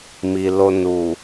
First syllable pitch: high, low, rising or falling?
low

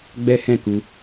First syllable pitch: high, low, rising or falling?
high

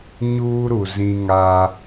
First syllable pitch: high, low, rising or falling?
high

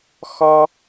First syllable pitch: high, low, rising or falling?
high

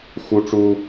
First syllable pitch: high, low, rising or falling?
high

